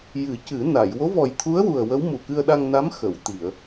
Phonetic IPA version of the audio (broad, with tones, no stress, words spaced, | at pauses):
jɨ˨˩˦cɨ˨˩˦na˨˩˨j wo˧˥vɔ˨˩jt̪ʰu˧˥ə̯ wu˨˩ə̯wə˧˥w mu˨˩ kɨ˧ə̯ɗa˧ŋna˧˥m xə˨˩˨wt̪i˨˩˨ə̯